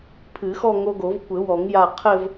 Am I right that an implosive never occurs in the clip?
yes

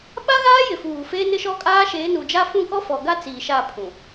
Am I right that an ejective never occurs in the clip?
no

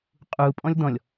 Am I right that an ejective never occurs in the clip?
no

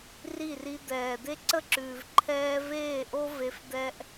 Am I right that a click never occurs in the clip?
no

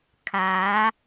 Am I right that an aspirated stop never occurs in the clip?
no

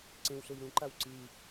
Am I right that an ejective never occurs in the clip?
yes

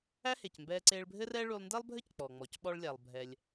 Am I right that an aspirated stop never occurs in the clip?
yes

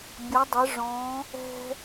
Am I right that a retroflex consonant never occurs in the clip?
no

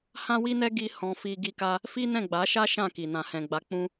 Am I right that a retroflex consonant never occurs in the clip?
yes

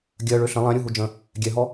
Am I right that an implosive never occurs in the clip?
yes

